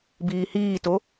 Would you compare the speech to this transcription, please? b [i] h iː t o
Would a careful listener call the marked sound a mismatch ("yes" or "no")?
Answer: yes